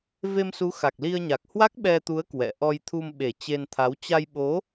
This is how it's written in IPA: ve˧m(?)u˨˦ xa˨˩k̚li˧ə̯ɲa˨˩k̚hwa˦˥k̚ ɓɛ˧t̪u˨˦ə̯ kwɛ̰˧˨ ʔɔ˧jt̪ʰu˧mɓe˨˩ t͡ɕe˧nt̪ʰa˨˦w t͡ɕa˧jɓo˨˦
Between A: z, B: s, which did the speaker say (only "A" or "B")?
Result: B